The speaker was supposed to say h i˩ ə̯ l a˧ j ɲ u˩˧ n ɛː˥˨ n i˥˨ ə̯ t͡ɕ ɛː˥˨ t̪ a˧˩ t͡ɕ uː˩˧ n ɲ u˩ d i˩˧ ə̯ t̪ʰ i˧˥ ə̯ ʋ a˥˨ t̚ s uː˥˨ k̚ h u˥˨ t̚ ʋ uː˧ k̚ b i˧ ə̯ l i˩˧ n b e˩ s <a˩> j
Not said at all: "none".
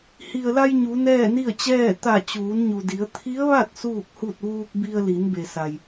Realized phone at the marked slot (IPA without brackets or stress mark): a˩